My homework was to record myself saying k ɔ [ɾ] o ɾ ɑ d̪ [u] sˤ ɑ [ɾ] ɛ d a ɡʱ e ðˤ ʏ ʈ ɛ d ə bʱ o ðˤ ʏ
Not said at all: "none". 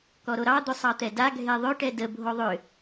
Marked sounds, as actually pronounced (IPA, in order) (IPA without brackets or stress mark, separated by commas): ɾ, ʏ, t̪